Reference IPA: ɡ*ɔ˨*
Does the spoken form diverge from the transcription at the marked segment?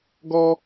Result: yes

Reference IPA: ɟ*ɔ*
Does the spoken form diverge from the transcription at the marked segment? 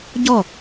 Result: no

